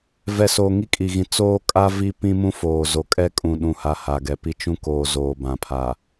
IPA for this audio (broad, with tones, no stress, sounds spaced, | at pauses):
v ɛ˨ s o˨ ŋ i˦ kʼ i˨ ɣ ĩ˨ t͡s oː˦ kʼ a˦ v i˦ p ĩ˦ m ũ˦ f oː˨ z o˨ kʼ ɛ˦ kʼ ũ˨ ɗ ũ˨ h a˨ h a˨ ɡ ɛ˨ p i˦ t͡ʃ ũ˦ k oː˨ z oː˨ b ã˨ pʰ a˨